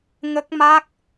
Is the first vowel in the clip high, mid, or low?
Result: mid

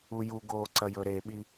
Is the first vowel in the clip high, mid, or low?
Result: high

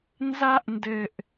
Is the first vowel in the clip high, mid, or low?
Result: low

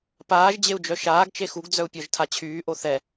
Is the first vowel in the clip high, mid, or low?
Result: low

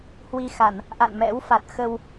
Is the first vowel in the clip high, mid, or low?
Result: high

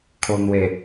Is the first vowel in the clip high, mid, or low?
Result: mid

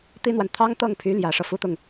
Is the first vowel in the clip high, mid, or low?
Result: high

